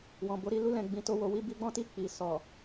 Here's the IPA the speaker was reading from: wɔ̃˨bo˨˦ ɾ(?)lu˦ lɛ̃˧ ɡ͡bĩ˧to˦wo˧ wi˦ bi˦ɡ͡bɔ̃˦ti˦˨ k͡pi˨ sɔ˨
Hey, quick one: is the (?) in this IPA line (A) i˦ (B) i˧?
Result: B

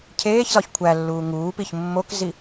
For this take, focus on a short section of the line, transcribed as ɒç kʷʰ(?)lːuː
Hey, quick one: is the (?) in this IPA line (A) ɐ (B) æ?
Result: B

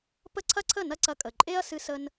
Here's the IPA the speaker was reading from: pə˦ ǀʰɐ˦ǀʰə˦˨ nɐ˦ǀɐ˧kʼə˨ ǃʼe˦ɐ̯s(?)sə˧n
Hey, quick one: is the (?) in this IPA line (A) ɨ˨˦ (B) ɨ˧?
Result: B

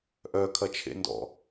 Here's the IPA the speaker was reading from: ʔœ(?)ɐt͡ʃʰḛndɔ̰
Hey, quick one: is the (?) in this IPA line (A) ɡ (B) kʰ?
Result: B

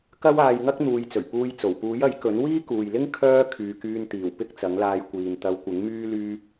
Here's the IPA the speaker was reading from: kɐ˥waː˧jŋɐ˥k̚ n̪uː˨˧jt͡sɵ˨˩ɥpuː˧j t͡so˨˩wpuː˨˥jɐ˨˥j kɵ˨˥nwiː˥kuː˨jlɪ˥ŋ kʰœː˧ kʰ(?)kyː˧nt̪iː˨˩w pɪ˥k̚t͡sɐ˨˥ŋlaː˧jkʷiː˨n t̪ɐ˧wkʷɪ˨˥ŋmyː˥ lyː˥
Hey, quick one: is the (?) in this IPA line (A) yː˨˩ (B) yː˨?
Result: B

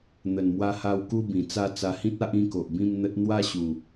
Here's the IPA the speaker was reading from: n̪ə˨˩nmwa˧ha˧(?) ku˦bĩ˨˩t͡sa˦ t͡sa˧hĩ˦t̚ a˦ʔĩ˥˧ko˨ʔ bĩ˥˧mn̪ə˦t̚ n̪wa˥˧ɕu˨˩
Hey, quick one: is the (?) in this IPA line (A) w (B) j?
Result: A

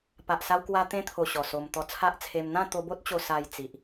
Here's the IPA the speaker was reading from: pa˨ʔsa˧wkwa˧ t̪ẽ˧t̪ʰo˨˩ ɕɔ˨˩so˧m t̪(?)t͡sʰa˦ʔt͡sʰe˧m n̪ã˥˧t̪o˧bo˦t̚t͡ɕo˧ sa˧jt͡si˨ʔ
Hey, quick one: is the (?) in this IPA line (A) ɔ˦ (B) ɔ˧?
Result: B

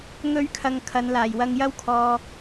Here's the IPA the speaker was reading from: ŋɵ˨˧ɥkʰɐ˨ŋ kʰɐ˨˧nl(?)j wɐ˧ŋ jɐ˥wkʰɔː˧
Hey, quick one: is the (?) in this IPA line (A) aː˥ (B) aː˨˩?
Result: B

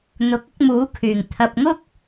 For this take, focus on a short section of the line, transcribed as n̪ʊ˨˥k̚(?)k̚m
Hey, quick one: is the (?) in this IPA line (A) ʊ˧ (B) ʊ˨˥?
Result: A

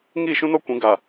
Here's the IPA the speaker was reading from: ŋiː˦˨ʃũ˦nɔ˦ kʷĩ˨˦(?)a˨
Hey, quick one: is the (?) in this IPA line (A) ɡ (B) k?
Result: A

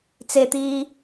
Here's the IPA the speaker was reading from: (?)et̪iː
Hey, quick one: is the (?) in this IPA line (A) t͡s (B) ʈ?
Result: A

